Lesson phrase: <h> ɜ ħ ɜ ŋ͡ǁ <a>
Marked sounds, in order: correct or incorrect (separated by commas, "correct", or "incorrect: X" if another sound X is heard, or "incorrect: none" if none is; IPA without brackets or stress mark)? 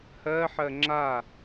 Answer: correct, correct